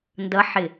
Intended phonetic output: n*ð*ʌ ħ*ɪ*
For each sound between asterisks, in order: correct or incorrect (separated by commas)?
incorrect, correct